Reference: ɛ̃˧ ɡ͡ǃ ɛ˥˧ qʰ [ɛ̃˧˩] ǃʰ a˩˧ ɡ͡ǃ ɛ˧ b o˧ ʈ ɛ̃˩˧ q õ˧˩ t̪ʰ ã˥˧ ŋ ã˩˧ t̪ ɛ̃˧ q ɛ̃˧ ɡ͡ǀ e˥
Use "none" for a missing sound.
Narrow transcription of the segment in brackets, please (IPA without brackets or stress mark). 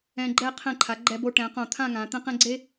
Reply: ɛ̃˧˩